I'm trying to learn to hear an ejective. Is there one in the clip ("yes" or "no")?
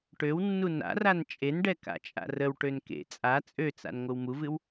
yes